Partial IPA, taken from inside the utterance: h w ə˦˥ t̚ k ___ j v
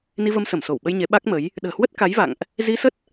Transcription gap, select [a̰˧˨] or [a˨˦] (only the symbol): a˨˦